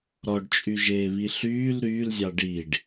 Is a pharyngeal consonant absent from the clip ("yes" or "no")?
yes